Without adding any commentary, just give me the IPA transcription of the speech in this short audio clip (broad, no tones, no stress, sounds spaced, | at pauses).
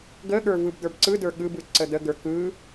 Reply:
ɡ ə ɠ ə˞ v ɯ b d̪ ə˞ b ǀ ɯ d ə˞ ɠ ɯ b ɯ ǀ ə d̪ ə ɡ ə˞ k ɯ